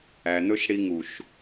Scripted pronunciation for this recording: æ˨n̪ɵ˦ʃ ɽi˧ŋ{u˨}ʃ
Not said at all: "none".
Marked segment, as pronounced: u˨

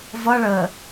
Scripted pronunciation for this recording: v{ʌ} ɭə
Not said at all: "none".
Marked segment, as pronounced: ʌ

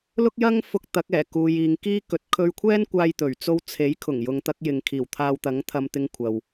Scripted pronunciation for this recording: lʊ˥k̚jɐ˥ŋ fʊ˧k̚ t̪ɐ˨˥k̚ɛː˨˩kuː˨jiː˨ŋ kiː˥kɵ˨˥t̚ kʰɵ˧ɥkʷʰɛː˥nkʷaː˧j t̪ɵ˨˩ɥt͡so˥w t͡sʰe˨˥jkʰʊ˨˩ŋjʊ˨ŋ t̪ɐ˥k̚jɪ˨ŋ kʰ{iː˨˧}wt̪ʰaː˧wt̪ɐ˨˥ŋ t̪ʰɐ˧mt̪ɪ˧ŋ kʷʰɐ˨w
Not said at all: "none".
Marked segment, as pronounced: iː˨˩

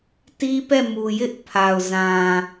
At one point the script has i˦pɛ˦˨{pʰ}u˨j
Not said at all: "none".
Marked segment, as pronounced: m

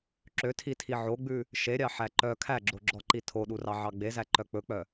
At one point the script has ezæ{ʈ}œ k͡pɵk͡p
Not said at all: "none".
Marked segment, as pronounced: ǃ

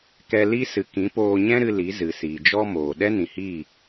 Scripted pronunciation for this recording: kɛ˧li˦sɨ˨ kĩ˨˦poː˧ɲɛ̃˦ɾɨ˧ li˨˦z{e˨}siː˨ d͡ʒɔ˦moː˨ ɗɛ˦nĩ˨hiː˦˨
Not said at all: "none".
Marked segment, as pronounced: ɨ˨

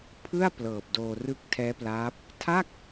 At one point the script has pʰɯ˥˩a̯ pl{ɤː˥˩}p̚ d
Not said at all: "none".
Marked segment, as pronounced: ɤː˨˩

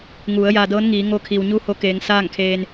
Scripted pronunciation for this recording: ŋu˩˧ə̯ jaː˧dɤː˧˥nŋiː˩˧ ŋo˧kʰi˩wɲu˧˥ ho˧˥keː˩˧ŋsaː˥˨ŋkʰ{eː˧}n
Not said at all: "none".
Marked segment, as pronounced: eː˧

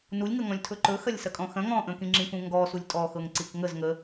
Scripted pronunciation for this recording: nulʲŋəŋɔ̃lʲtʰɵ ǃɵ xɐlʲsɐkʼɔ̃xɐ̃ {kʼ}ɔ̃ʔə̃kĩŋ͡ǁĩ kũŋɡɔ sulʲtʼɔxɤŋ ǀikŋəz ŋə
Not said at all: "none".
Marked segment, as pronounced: ŋ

